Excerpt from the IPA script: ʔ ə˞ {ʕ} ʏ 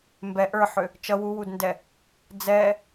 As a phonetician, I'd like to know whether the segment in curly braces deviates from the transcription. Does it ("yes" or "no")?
yes